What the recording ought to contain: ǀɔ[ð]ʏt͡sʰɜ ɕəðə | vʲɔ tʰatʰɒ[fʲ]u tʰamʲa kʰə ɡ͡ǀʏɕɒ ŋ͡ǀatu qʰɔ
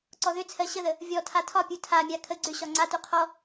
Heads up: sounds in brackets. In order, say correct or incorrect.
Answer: correct, incorrect: pʲ

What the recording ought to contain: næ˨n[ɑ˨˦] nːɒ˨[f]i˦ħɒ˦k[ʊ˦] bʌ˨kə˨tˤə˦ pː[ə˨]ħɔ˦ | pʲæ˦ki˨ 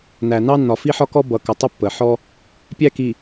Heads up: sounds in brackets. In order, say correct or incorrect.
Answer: incorrect: ɑ˦, correct, incorrect: ɔ˦, correct

